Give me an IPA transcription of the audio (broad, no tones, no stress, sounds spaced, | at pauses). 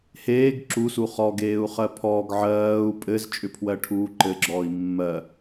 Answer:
h eː ɡ ǁ u s u χ ɔ ɡ eː u̯ χ ɜ pʰ ɔː ɡ ʕ ɜː u̯ pʼ ɘ z t͡ʃʼ ʏ pʰ w ɜ ʈʰ uː ǃ ɘ ɡ͡ǁ ɔː i̯ mː ɜ